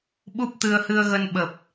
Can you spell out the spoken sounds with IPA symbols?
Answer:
ɓ u˦˥ p̚ t̪ ɨ˧ ə̯ h ɨ˧ ə̯ ɣ ə˧ n ɓ ə˨˩ p̚

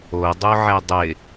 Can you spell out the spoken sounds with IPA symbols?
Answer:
o dˤ o ʕ ɛ dˤ ɪ

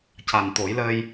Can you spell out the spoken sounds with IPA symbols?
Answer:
c a˨˩ n t̪ o˨˩˦ j l ə˧ j

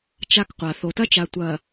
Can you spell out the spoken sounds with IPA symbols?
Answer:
t͡ʃ a˦˨ k qʷ a˨ θ o˨ t ɐ˦ t͡ʃ a˨ tʷ ɐ˨

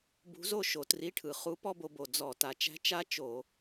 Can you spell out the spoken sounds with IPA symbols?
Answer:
b ṳ˧˥ z o˥ ʃ o˨˩ t r i˧˥˧ ʈʰ ɯ˨˩ χ u˧˥ p ɔ˥ b o˧ b o˨˩ d͡z ɔ˧˩˧ t a˨˩ t͡ʃ æ̤˥ t͡ʃ a˥ t͡ʃ o˧˩˧

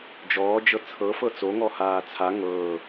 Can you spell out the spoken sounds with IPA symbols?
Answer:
d͡ʒ ɔː d͡ʒ ɤ t͡sʰ ɤ f ɤ t͡s o ŋ ɔ h aː t͡sʰ a ŋ ɤː

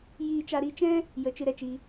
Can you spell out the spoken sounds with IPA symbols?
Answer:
j iː˦ t͡ʃ a˦ ɾ i˧ t͡ʃ ɛ̃˦ | j ə˧ t͡ʃ ɨ˧ ɾ ɛ˧ t͡ʃ i˧

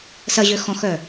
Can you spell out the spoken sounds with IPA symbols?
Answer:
s ɐ ʑ ø x ɔ̃ x œ

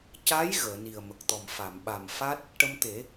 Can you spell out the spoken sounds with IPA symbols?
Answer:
c a˧˥ j ɣ əː˨˩˨ n i˨˩ ə̯ m ə˨˩ k̚ t̪ ɔ˨˩ m f a˨˩˨ m ɓ a˨˩ m f a˦˥ t̚ | ʈ ə˧ m t̪ e˨˩˦

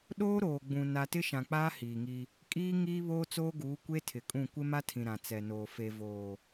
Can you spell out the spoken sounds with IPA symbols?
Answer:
ɗ oː˦ ɾ oː˨ ɡ͡b ũ˨ n a˨ t ɪ˦ ʃ ã˨ k͡p aː˦ h iː˨ ŋ i˦ | kʼ iː˦ ŋ iː˦ β oː˦ t͡s oː˦ ɡ uː˨˦ kʷ e˦ tʰ ɪ˨ kʼ ũ˦˨ kʷ ɪ˦ m a˦ tʰ ĩ˨ ɾ ã˨ t͡s ɛ˨ n oː˨ f e˨ v oː˨

